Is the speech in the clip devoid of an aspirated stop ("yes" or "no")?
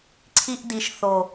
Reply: no